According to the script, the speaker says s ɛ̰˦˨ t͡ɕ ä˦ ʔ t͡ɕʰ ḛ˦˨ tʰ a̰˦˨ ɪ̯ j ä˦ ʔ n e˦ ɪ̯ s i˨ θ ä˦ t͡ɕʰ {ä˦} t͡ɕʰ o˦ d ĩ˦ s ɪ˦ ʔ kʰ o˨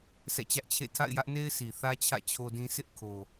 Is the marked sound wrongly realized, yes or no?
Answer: yes